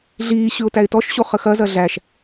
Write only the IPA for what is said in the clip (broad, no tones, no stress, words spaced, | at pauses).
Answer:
ɮiː ɕʉʊ̯tæɪ̯tɔʃɕo χəxɐzɐ ɮæʃ